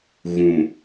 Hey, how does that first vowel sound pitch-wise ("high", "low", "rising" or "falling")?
low